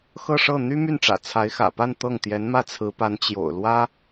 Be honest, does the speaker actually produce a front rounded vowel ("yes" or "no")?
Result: yes